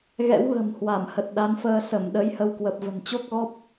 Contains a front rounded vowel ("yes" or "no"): no